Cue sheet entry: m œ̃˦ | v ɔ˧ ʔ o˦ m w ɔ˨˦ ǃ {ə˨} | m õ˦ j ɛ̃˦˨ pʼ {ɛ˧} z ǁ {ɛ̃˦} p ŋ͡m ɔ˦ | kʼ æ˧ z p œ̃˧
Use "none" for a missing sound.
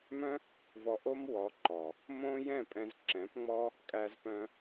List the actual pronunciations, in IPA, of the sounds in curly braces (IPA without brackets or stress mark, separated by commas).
ɔ˨, ɛ̃˧, ɛ̃˨˦